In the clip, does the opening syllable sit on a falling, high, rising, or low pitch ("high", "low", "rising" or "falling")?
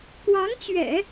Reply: rising